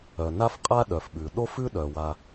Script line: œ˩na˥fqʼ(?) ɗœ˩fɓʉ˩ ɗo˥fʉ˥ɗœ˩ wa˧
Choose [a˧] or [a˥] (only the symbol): a˥